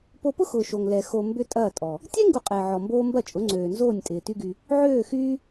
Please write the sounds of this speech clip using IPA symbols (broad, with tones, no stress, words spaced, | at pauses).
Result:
po˧pʊ˦xʊː˨ ʃo˨ŋlɛ˨ xo˨ mbʏ˦tʼɐː˦˨tʼɔ˨ | tʲɛ˦ ŋɡu˧qʼɪː˨ʕɔ˨mboː˦ mbɐ˦˨t͡ʃʼʊ˨˦ŋ͡ǀøː˨nzoː˦˨nʲ tʼɪː˨ty˦ɡy˧ | ʕøː˦˨xyː˦